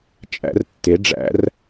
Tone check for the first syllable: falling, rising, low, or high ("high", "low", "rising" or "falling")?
rising